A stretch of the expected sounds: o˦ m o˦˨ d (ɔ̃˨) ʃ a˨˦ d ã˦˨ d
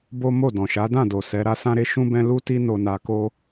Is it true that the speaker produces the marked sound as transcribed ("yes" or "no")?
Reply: yes